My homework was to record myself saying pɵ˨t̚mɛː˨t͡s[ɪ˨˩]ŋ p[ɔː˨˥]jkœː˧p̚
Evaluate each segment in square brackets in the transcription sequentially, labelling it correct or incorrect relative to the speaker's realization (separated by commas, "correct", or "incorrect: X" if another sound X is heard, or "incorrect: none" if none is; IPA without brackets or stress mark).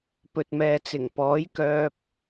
correct, correct